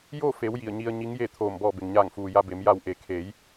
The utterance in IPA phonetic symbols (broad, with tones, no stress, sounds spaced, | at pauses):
j o˥˨ f e˩˧ w j i˧˩ ə̯ ɲ i˧ ə̯ ɲ i˧˥ ŋ j e˥˨ t̪ʰ oː˧˩ m b ɔː˧˩ b e˩ ŋ ɲ aː˧˩ ŋ f uː˩ j a˧ b e˩˧ m j a˧˩ w ʔ e˩ kʰ eː˩˧ j